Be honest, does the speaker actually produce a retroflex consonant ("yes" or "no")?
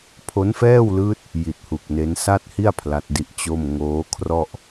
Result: no